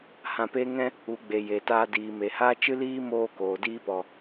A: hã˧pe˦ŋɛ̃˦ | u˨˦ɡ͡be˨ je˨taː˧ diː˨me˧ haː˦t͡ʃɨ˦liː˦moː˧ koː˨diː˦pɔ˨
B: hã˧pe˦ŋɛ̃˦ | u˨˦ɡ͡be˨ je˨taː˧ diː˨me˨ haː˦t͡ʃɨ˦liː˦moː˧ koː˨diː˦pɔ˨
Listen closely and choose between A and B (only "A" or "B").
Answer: B